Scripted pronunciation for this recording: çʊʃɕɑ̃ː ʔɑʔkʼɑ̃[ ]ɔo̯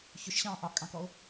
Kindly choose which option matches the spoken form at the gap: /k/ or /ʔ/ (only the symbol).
k